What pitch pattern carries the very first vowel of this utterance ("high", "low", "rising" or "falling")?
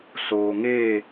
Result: low